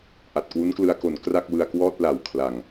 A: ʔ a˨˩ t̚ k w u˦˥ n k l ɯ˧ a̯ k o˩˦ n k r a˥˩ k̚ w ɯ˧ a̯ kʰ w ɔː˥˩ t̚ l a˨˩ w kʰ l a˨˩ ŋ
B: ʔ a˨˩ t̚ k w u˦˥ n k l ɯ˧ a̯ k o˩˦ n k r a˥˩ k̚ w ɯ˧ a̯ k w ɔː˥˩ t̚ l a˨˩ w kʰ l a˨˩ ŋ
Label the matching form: B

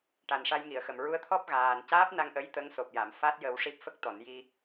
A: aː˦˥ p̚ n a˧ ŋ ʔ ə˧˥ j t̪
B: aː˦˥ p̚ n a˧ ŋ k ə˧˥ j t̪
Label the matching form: A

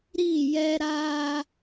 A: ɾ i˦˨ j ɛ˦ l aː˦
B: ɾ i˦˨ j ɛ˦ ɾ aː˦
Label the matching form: B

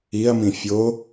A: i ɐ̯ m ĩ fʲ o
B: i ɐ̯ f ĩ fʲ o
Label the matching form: A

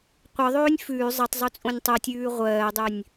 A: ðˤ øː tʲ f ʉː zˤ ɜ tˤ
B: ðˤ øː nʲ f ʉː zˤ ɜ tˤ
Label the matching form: B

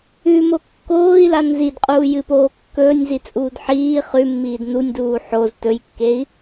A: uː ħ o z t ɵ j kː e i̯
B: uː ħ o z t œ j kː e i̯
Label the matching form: A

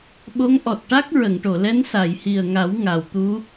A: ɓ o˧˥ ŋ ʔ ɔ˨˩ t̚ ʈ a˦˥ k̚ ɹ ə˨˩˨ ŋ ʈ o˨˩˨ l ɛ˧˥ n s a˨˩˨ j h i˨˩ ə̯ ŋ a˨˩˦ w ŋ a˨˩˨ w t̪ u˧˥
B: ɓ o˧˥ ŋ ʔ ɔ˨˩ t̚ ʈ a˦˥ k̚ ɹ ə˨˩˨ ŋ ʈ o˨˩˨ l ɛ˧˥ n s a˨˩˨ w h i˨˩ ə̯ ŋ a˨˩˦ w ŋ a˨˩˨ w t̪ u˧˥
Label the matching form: A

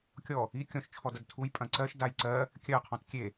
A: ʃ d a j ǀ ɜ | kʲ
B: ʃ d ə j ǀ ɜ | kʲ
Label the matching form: A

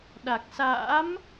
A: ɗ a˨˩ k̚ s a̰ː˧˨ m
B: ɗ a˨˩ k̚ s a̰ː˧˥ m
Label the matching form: B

